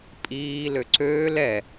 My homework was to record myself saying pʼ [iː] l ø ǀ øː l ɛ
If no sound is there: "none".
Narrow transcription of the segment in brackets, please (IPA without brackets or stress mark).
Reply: iː